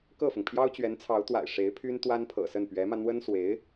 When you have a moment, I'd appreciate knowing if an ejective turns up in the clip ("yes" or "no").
no